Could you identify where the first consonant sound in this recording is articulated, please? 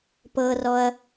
labial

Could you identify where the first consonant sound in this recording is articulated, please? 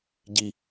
palatal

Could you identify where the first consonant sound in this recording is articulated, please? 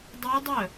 alveolar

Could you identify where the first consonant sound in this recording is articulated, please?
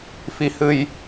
labial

